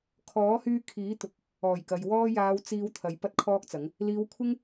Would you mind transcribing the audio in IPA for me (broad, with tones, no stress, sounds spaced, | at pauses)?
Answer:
kʰ ɔː˨˥ h yː˧ kʰ iː˨˥ t̪ ʊ˨ k̚ | ɔː˨˩ j k ɐ˨ j w ɔː˧ j aː˨˧ w t͡s iː˨˧ w t̪ʰ ɐ˨˧ j p ɐ˥ t̚ kʰ ɔː˥ k̚ t͡s ɐ˨˥ ŋ | l iː˨˧ w kʷʰ ɪ˥ ŋ